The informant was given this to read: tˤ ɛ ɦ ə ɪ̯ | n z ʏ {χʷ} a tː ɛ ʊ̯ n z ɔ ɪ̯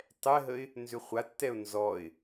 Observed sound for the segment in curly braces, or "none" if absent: χʷ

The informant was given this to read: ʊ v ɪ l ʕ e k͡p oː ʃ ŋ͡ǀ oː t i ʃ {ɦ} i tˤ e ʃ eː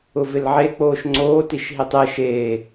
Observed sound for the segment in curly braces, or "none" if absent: ɦ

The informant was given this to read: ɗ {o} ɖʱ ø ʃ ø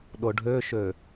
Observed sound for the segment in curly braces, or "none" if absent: o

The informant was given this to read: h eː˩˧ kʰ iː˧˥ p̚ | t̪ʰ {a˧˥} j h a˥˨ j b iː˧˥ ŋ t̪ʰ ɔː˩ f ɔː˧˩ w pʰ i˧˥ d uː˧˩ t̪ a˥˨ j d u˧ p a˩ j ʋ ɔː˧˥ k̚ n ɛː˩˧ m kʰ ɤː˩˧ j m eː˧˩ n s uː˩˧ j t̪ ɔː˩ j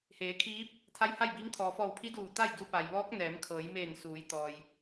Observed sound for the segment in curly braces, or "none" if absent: a˧˥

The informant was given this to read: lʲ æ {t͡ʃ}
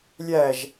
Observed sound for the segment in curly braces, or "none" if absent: ʒ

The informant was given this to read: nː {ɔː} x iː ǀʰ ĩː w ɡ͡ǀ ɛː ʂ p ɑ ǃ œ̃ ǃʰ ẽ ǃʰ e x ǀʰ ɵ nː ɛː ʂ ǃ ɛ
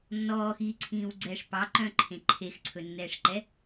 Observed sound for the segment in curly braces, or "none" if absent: ɔː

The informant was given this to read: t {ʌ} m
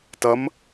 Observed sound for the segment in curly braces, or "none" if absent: ʌ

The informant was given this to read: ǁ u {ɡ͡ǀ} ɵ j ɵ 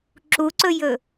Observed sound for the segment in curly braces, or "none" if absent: ǀ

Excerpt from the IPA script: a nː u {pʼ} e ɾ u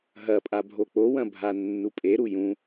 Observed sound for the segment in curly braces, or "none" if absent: pʼ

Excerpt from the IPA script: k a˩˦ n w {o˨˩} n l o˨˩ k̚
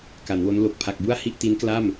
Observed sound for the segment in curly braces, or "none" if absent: o˦˥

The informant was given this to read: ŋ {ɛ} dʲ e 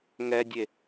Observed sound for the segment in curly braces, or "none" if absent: ɛ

